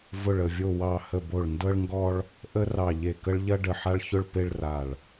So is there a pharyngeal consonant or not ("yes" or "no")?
yes